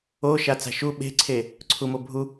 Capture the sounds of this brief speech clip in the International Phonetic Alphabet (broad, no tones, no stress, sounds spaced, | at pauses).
o ʃ a t͡s a̤ ʃ u ɓ e̤ ǀʰ e | ǀʰ u m o bʱ u